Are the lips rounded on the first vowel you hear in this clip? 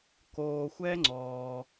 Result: yes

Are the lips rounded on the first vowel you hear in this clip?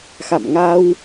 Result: no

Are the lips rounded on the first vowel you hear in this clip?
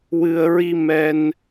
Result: no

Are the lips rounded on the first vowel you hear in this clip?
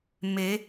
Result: no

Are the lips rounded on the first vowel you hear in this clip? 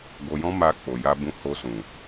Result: yes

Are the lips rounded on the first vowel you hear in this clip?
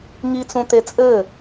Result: no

